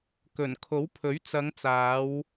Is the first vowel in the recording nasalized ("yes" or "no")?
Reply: no